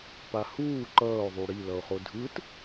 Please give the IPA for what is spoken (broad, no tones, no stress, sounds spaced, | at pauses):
p a h uː ǃ ʌː o̯ ðˤ u ɽ i l ʌ o̯ χ o dʱ ɯ t